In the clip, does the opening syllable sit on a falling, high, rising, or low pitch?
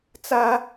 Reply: high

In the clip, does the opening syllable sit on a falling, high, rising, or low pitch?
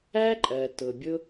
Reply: high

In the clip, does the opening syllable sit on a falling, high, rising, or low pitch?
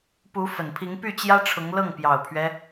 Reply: rising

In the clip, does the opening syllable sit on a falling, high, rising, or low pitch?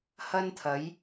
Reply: high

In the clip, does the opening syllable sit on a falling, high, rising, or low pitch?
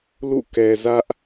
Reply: falling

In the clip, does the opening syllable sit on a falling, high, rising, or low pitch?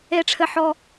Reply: high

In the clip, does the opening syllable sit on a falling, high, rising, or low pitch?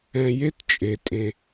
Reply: low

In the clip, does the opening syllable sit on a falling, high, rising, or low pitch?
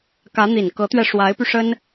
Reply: rising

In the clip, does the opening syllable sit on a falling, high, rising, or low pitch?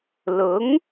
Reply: rising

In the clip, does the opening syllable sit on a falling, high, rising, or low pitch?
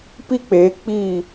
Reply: high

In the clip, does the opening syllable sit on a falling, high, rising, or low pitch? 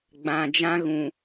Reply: low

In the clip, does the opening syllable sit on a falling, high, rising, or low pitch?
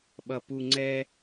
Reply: low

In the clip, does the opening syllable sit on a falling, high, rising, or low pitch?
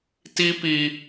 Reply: high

